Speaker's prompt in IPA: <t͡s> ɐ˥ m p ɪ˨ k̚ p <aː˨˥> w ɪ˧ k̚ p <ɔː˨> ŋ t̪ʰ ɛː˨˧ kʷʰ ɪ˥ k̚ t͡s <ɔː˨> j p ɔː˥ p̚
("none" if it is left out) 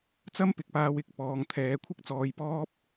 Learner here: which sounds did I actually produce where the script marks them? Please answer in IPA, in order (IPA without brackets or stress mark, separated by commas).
t͡s, aː˧, ɔː˨, ɔː˧